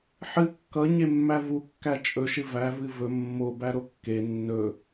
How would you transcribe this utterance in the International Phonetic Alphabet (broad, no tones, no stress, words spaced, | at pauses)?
ħɨ kːʌɲemːæ vukːæ t͡ʃʼɵʃɨ vævɨ vɵ mːobæɾo kːe nːɵ